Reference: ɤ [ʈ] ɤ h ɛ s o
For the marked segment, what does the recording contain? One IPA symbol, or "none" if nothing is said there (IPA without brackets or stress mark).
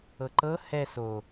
ǃ